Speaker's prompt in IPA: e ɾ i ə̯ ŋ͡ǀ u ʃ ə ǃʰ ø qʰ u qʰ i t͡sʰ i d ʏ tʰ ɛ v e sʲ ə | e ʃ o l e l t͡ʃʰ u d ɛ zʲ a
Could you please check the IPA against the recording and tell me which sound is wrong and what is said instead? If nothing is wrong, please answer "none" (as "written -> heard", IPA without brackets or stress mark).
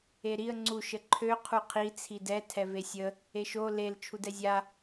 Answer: ʏ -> ɛ